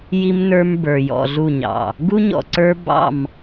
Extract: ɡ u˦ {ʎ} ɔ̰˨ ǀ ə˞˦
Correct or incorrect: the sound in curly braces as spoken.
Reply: incorrect: ɲ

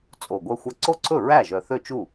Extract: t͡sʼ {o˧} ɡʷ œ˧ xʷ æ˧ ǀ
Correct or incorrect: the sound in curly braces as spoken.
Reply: incorrect: o˨˩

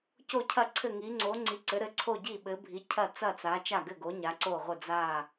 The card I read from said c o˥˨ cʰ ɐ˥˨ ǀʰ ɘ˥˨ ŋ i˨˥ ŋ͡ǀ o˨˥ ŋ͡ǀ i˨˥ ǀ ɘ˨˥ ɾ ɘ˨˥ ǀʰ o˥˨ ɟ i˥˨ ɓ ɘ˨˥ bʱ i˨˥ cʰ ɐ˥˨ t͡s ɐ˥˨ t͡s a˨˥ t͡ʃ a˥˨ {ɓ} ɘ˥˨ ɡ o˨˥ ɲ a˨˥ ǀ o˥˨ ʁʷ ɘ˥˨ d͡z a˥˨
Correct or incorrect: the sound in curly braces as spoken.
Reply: incorrect: ɡ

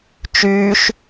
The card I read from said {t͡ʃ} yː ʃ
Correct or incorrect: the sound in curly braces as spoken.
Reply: correct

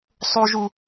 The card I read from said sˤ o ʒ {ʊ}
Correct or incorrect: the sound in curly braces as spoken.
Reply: incorrect: u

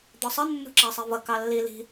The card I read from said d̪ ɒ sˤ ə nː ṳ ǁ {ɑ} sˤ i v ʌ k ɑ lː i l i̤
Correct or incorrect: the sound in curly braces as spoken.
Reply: correct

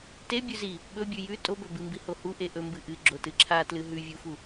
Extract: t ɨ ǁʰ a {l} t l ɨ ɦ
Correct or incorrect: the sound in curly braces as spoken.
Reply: incorrect: none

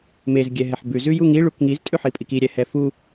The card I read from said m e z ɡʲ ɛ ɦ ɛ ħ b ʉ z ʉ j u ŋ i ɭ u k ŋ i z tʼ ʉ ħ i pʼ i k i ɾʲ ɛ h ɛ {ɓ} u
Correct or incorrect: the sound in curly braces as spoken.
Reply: incorrect: f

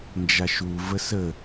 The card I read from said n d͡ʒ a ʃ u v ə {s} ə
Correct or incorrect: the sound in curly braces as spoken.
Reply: correct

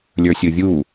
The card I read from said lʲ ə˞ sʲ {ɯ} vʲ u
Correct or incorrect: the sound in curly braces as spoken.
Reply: correct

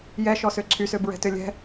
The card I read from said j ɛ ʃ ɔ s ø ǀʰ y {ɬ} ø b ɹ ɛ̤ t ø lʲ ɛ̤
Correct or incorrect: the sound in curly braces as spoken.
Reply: incorrect: s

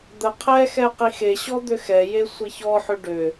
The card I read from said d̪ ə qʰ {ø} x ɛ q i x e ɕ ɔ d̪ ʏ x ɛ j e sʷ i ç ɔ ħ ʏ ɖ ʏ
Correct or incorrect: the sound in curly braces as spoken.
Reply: incorrect: ɛ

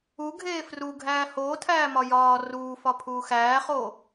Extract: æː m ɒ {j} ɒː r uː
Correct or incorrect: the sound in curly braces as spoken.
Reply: correct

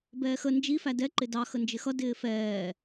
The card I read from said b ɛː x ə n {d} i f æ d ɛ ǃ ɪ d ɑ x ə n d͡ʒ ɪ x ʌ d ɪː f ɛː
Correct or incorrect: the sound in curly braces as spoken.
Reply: incorrect: d͡ʒ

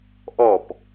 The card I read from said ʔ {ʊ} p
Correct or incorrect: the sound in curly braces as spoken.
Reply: incorrect: ɔ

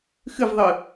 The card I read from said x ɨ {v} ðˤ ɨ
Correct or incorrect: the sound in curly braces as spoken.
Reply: correct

